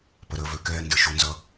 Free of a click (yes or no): yes